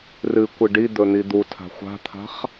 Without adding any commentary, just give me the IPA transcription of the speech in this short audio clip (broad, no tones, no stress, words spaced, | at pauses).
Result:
rɨ kʷɨɖid̪ɵ n̪id̪utʰa̤ xʷa̤t̪ʰa̤χ